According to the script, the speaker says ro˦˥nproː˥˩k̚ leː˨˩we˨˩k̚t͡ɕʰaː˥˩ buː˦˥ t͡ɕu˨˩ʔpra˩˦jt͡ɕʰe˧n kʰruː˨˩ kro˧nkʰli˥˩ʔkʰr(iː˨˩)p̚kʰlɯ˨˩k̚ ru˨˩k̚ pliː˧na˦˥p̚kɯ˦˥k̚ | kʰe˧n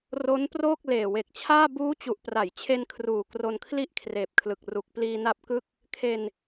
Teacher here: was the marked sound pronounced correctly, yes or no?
no